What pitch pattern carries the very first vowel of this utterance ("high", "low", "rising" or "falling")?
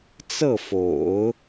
falling